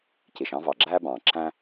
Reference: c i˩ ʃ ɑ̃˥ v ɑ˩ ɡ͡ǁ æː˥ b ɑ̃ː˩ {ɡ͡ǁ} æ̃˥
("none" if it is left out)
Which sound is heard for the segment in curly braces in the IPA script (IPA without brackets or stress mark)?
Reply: ǁ